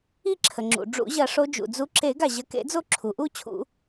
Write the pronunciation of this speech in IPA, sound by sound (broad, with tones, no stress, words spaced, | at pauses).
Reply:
i˦˨ǁʰə˩ŋ͡ǁṵ˩ ɖ͡ʐṵ˨˩˦ʑɐ˨˩˦ʂo˨˦ d͡ʒṵ˩d͡zu˨˦ǁe˨˩˦ɡa˩ ʑɐ˨˦kḛ˨˩˦d͡zo˦˨ ǁʰu˩ʔu˦˨t͡ɕʰṵ˨˩˦